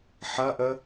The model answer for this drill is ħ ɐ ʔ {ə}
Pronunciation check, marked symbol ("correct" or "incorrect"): correct